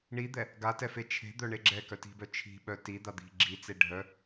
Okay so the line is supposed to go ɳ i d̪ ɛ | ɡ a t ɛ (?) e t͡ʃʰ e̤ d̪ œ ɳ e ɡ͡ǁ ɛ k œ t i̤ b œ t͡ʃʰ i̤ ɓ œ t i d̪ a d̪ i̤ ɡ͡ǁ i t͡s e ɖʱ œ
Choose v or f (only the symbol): f